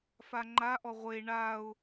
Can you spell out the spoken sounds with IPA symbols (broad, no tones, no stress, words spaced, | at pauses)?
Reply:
faŋ͡ǃaʔɔ ʁʷe ɳaʊ̯